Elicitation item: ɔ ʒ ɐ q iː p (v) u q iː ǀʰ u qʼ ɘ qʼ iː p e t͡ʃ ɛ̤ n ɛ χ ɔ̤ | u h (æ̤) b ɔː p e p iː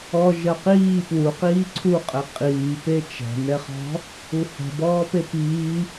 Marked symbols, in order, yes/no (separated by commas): no, no